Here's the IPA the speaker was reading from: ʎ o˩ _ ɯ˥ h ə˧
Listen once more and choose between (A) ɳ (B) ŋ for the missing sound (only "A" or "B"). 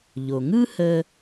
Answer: B